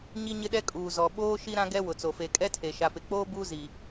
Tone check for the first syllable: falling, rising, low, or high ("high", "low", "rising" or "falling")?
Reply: high